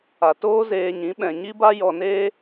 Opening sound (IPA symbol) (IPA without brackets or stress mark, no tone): a